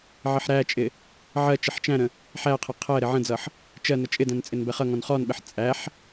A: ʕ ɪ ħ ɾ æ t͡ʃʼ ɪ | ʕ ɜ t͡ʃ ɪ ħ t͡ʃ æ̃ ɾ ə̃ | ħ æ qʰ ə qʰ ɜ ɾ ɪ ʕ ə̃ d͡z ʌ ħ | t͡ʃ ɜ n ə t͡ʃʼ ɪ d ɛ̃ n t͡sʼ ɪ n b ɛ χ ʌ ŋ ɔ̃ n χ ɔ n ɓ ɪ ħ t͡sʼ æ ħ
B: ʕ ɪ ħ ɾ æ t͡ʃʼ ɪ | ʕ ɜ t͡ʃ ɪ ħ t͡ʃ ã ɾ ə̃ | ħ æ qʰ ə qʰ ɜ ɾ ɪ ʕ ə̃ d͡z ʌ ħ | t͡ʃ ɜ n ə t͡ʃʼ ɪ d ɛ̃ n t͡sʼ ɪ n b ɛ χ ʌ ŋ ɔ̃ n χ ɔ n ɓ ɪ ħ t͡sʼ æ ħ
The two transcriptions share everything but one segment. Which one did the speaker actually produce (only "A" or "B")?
A